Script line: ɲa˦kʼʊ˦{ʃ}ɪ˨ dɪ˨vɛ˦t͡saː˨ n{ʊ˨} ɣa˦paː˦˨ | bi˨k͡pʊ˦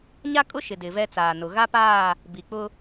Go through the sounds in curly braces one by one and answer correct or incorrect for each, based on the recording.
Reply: correct, correct

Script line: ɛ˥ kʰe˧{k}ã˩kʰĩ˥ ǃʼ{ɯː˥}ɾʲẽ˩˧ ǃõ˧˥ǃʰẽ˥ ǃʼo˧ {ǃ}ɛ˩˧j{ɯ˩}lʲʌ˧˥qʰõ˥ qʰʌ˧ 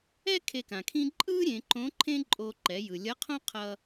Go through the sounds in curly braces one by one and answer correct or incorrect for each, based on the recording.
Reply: correct, correct, correct, correct

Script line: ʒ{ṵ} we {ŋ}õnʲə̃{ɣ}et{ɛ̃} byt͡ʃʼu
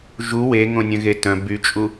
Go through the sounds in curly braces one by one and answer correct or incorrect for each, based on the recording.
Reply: incorrect: u, correct, correct, incorrect: œ̃

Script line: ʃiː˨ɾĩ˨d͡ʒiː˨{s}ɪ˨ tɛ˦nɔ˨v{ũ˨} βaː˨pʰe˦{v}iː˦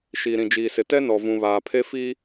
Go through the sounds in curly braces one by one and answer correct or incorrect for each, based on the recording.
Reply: correct, correct, incorrect: f

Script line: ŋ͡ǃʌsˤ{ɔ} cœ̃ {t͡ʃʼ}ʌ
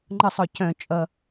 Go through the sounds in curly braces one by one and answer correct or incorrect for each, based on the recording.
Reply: correct, correct

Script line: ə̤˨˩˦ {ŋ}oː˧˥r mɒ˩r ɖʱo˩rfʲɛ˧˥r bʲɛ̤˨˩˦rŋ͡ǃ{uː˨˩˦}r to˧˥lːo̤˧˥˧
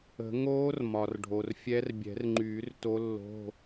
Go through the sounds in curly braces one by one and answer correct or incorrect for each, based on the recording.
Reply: correct, incorrect: yː˨˩˦

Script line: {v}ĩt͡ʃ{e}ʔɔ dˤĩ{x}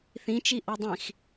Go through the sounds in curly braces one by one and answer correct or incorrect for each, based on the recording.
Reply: incorrect: θ, incorrect: i, correct

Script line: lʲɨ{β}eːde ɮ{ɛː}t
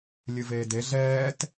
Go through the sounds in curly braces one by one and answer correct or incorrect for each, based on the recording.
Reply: incorrect: v, correct

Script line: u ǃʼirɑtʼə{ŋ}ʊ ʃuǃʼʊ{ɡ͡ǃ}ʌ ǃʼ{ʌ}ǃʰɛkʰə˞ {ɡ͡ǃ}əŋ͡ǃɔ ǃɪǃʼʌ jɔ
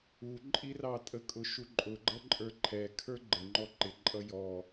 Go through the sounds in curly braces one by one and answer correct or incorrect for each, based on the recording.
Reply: incorrect: kʼ, correct, incorrect: ə˞, correct

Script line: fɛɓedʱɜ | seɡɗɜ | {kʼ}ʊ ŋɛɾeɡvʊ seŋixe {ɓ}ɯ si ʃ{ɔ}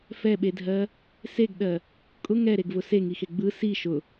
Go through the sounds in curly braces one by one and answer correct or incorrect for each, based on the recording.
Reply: correct, incorrect: ɡ͡b, incorrect: ʊ

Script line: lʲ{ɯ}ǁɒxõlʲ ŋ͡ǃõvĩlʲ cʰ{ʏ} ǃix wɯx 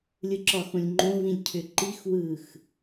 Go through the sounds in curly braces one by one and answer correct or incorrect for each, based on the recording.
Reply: correct, correct

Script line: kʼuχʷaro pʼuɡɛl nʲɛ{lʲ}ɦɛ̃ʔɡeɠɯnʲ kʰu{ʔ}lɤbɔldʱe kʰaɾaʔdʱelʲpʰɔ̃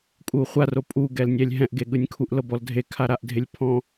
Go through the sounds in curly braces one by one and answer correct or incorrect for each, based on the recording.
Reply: correct, correct

